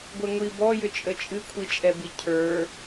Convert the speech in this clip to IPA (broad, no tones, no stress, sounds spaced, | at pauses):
ɡʷ ɛ ŋʷ i b ɔ j ʏ t͡ʃʼ ə t͡ʃʼ ɨ kʷʰ i t͡ʃʼ ɛ b i cʰ ə˞